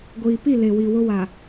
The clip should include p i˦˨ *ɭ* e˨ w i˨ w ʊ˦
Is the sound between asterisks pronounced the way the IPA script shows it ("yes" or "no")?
no